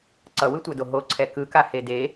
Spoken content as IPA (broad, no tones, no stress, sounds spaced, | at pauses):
ǀ ʌ w ɯ tʷ a d o ɦ o ǀʰ ɛ k ɯ k a h e d e